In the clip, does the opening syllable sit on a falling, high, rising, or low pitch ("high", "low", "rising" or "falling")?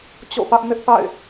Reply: falling